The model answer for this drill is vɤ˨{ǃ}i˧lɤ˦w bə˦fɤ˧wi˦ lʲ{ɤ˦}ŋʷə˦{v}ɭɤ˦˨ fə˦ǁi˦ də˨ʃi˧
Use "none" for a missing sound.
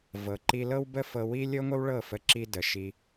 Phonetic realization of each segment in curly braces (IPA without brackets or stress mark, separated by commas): ǃ, ɤ˦, w